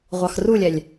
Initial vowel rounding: unrounded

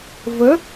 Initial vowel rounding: unrounded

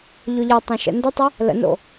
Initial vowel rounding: rounded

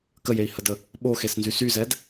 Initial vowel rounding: unrounded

